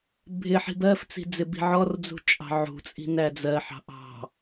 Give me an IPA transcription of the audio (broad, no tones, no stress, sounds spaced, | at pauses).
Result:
bʱ ɪ ħ i̤ b ɜ f t͡s i̤ d͡z ɪ b i̤ ʕ ɔ r d͡z ṳ t͡ʃʼ ɑ̤ ʕ ṳ t͡sʼ i̤ n æ d͡z ɜ ħ ɑ̤ ʔ ɑ̤